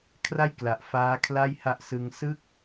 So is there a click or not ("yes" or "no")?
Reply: no